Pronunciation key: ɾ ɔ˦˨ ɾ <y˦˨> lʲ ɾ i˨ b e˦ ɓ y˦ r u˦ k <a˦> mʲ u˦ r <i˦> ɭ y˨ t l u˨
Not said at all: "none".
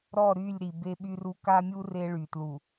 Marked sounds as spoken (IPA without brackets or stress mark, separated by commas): y˦˨, a˦, e˦